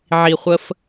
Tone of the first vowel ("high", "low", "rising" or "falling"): low